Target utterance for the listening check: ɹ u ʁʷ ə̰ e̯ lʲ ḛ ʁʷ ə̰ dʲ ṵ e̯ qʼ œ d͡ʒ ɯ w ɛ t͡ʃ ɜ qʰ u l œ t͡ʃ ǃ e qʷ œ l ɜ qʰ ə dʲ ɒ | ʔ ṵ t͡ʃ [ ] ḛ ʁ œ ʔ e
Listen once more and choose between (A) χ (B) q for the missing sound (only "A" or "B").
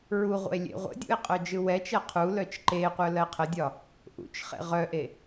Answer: A